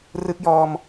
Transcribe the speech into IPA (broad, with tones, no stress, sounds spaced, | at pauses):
r ɯ˦˥ k̚ j ɔː˧ m